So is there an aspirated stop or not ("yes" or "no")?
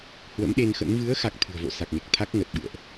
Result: yes